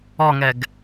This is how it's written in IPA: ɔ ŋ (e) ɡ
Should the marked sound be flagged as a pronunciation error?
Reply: yes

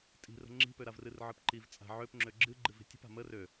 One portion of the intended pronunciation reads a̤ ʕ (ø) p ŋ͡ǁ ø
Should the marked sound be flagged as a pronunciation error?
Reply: no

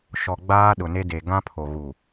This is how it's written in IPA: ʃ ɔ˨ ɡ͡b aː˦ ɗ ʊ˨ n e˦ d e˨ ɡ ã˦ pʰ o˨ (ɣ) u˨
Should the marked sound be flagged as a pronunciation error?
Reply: no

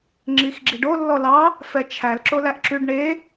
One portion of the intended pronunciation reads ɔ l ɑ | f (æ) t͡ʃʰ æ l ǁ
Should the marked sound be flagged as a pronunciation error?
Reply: yes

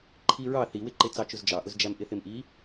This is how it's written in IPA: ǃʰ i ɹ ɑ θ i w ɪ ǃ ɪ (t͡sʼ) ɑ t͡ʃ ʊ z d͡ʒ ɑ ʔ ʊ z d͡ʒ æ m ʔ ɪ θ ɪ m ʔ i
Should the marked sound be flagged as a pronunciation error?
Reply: yes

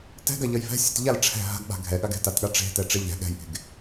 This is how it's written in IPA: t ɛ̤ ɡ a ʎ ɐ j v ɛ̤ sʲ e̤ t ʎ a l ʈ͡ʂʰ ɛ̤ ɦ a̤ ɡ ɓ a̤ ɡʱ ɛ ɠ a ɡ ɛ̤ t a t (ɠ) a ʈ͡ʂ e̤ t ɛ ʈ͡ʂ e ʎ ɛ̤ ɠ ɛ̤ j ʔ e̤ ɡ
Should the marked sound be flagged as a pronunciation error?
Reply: no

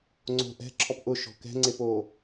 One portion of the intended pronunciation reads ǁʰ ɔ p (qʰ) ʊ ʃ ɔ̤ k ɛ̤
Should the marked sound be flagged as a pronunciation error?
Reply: yes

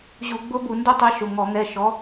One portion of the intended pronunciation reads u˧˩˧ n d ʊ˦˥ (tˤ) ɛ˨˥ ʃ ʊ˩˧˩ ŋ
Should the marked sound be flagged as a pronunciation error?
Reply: no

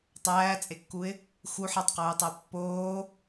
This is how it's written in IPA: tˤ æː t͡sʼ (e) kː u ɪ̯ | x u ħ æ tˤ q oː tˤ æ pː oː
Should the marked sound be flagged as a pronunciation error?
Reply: no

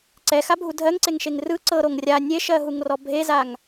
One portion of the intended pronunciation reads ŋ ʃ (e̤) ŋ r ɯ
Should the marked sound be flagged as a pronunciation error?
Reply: yes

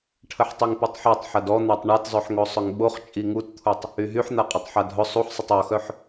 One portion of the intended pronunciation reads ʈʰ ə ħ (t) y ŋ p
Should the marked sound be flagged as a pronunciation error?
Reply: yes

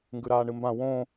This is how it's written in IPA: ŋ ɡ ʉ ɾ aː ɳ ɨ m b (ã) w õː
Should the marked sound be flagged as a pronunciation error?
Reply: no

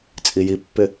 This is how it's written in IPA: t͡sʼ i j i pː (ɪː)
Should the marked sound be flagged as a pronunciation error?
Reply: yes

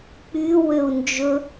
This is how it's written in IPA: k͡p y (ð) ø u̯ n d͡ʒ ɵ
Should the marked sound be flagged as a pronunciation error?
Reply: yes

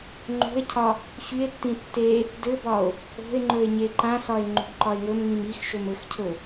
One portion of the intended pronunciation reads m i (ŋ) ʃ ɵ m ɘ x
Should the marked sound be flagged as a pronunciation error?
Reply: yes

